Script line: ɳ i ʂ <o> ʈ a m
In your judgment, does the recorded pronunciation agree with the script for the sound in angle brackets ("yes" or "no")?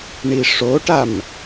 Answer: yes